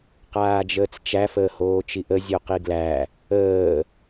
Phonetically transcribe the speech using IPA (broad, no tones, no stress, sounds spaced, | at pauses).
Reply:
q aː d͡ʒ əː t͡s t͡ʃ æ f əː h oː t͡ʃ i ʔ ə zʲ o q i ɡ l æ | əː